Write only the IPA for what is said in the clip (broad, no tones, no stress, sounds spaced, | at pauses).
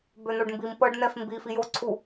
b ø n̪ o ɖ m b i m p ɤ ɖ n̪ ɛ f m b i f i j o ǀʰ u